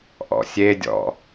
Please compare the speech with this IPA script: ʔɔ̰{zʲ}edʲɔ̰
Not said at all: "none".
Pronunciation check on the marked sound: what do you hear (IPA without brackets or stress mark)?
sʲ